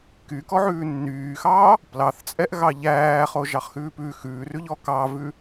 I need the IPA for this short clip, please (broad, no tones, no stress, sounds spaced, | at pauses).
k y k ɔ ʕ ʉː nː yː x ɑː | p l ɑ θ t͡sʼ ɛ ʔ ɣ ɑ ʎ æː χ o ʒ ɑ χ x ʉː p ʉ x ʉː r ʉ ʎ ɔ k ɑ v ʉ